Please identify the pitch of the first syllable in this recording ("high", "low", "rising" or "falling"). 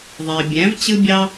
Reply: low